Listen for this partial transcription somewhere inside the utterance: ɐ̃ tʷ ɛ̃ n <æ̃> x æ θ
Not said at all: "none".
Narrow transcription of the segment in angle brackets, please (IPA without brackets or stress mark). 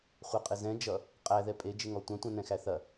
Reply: ɛ̃